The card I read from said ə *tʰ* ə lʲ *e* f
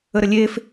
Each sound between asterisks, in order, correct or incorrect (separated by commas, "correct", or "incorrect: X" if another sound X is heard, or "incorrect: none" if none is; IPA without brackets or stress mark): incorrect: ɾ, correct